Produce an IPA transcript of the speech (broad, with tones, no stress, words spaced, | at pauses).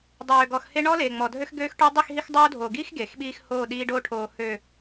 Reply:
dˤøː˨ɡɔ˨xhe˦ ɳɔ˦leː˨ŋ͡mɔ˨dʱø˦x ɡøː˦xʈø˦ dˤi˦˨xɦi˦xdˤoː˦ dʱoː˨ɡiː˦x ɡeː˨xɓiː˦x hoː˦˨ɗiː˦ɖo˦ʈʰoː˨ hø˨